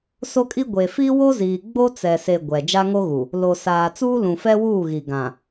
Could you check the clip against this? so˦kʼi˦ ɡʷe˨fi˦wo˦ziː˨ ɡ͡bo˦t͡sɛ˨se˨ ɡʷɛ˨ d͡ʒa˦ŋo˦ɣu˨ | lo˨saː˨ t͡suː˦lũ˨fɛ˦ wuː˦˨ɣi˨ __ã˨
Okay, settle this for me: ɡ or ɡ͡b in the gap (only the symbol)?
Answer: ɡ